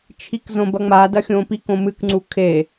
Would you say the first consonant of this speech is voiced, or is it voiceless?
voiceless